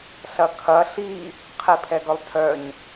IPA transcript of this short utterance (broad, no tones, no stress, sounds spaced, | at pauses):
ɬ ɐ kʰ ɐ ɬ i | qʰ i pʰ ɛ ɡ œ lˠ tʰ œ ɲ